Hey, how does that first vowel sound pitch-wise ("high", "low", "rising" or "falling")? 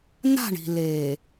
falling